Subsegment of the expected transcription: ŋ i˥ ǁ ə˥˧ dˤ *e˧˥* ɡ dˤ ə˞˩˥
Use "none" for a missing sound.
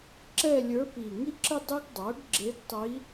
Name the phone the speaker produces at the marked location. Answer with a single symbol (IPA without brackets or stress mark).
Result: e˥